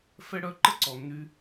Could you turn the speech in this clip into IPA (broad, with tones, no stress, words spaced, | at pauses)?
fɛ˦ɽœ˦ ǃə˦ǀɔ˨nːy˧